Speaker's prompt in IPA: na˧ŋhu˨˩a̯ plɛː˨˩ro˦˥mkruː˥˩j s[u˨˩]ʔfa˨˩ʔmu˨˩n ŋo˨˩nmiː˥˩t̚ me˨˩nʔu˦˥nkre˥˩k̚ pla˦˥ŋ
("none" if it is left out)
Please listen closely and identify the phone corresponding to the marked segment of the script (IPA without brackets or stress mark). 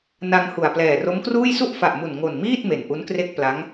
u˥˩